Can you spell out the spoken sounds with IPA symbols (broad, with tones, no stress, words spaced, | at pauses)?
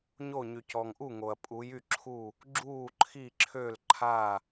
ɲo˥˨ ɲy˨cɔ˨ŋʔu˥˨ŋo˨ɐ̯ pʼu˧˥j y˥˨ǁʰu˥˨ | ɡ͡ǁuː˥˨ǃʰi˥˨ǁʰø˥˨l ǃʰa˥˨